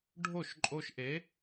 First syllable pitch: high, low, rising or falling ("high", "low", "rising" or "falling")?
falling